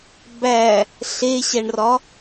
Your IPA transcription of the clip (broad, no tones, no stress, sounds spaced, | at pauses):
b æ | ɬ e ɕ æ ɳ r ɒ